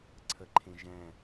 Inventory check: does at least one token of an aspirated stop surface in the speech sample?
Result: yes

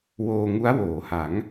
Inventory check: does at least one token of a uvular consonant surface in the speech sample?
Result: no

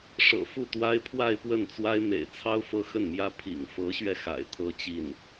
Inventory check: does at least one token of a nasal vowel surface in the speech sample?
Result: no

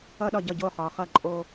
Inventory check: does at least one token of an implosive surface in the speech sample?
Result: yes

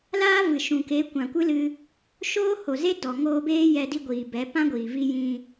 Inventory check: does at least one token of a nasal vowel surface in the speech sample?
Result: yes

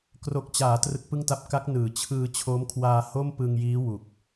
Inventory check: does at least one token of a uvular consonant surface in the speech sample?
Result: no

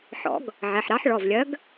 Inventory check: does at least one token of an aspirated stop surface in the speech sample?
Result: no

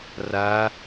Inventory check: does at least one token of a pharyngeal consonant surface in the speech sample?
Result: no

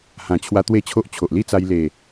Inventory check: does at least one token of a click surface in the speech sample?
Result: no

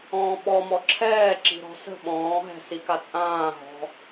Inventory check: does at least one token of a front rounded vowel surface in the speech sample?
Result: no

